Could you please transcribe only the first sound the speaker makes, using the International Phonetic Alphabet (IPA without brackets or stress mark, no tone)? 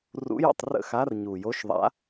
r